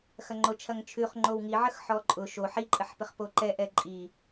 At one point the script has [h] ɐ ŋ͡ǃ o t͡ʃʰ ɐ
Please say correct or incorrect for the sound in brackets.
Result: incorrect: x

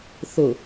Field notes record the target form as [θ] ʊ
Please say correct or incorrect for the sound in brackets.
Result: correct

